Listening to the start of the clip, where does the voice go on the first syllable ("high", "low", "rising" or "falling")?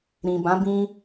low